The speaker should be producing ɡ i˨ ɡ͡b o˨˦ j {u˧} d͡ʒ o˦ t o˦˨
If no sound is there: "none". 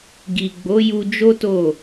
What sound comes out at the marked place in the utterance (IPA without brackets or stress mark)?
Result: u˧